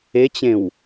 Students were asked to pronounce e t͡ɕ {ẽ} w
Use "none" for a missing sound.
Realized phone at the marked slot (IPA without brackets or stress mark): ẽ